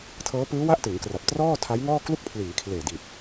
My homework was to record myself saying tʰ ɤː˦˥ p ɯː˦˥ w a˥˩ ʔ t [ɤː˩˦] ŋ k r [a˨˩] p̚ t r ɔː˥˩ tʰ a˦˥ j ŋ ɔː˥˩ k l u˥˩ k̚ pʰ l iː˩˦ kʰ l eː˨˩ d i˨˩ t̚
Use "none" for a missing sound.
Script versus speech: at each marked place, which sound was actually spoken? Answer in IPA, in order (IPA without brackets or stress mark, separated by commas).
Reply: ɯː˩˦, a˨˩